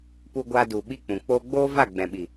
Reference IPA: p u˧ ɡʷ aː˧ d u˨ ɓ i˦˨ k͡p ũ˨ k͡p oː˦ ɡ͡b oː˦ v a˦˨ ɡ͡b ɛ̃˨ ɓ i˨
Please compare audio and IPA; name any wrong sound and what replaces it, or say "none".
none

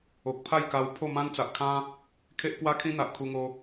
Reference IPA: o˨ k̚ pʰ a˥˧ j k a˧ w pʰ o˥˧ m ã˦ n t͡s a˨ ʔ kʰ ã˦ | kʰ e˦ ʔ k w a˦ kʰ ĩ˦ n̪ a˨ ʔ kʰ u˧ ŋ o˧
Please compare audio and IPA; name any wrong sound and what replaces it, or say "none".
none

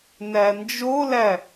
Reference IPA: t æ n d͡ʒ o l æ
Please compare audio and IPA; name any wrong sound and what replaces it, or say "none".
t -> n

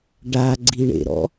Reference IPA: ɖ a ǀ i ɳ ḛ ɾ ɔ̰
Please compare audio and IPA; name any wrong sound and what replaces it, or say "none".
ǀ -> ɡ͡ǀ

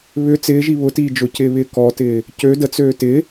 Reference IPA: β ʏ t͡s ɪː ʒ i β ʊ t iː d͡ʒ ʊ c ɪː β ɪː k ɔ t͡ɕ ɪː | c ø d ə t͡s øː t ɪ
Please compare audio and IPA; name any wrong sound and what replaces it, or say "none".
t͡ɕ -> t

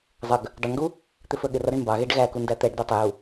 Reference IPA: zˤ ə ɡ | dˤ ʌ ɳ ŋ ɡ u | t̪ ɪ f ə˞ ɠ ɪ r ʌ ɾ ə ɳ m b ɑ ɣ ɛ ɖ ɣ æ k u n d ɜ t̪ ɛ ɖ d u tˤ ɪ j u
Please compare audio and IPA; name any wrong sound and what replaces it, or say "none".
ɜ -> æ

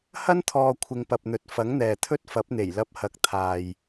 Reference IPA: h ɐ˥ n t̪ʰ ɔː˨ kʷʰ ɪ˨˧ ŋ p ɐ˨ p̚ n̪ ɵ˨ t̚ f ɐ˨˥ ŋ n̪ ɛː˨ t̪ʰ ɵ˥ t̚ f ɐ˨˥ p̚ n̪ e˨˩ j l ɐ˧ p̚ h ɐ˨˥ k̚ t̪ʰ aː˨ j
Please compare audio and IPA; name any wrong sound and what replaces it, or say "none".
none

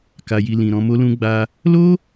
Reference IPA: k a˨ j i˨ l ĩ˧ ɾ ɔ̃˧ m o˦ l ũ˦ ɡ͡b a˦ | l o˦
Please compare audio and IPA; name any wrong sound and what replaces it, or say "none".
ĩ˧ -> ĩ˨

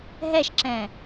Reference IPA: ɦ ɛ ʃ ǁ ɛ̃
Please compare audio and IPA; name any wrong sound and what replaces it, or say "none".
none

